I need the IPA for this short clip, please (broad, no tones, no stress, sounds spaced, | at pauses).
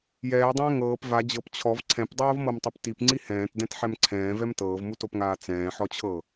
j ɛː dˤ ɛ̃ː ŋ ɤː p v a d͡ʑ ɤ p t͡ɕʰ ɔ v ǀʰ ɛ̃ p dˤ oː v m ɤ m tˤ o p t i p ŋ͡ǀ i h ɛ̃ː t d ɛ̃ t ħ ɛ m ǀʰ ɛ̃ː v ɛ m t ɤː v m u t o p ŋ aː t͡s ɛ̃ː ħ ɔ t͡ɕʰ ɤ